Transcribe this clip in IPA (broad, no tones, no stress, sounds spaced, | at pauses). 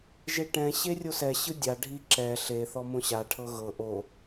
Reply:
ʒ e ʈ ɛ̃ ɕ e rʲ o s ɛ ɕ ɯ dʲ a ɖʱ i ǁ ɛ ɬ e θ ɔ m õ ɕ a ʈʰ ɤ ɣ ɤ ʔ o